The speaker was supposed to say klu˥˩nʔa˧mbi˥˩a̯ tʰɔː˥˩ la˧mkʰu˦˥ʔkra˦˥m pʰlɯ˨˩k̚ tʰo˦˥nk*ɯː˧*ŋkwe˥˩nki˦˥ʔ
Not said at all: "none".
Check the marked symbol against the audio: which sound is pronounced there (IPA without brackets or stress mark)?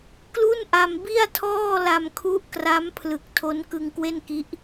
ɯ˧